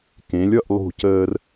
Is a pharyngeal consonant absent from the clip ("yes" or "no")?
yes